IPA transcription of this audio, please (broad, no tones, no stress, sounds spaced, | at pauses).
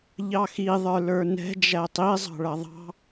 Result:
ʎ ɑ x i ðˤ ə˞ l ə˞ n ɛ̤ d͡ʒ æ tˤ i zˤ ɑ̤ ɭ ʌ ðˤ ɑ̤